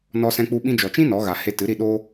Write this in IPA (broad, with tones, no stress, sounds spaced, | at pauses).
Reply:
n ɔ˦ s ɛ̃˦ k͡p u˦ ɓ ĩ˧ d͡ʒ ɔ˨ t͡ʃ ĩ˦ n ɔ˨˦ ɣ a˨ h e˧ t ɨ˨˦ ɾ i˧ ɗ oː˦